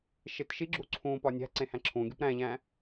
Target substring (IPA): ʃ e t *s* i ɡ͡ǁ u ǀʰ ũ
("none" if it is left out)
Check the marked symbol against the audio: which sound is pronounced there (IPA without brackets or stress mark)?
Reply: ʃ